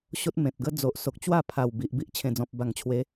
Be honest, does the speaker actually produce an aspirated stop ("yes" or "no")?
yes